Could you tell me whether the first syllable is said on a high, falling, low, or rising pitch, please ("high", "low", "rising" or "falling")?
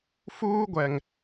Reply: high